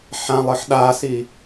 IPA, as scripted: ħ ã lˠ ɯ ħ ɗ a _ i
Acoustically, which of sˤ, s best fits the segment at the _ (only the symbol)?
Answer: s